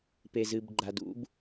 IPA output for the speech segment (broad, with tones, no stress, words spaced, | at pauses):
pe˩zɨ˩bɡ͡ǃa˩d ṵ˨˦b